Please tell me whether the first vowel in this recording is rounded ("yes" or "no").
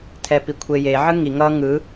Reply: no